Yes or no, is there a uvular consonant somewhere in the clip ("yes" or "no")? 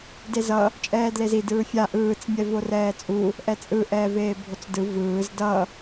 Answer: no